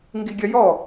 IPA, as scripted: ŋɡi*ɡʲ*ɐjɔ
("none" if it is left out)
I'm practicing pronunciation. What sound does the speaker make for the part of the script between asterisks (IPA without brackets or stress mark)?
ɡʲ